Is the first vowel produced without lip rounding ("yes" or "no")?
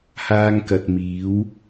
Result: yes